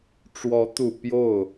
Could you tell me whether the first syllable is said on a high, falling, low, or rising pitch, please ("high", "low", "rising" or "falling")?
rising